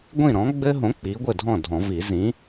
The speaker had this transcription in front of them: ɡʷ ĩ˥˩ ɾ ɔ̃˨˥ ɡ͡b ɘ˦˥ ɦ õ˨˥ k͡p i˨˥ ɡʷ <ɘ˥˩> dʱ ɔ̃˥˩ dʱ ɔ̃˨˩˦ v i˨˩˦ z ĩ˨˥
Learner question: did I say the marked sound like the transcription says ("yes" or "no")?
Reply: yes